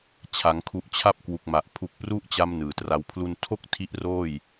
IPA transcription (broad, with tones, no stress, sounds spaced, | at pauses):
t͡ɕʰ a˩˦ ŋ kʰ u˨˩ ʔ t͡ɕʰ a˦˥ p̚ k w u˨˩ k̚ m a˨˩ ʔ pʰ u˨˩ k̚ p r u˦˥ ʔ t͡ɕ a˧ m n ɯː˨˩ t r a˦˥ w pʰ l u˥˩ n tʰ o˥˩ k̚ tʰ i˦˥ ʔ r oː˥˩ j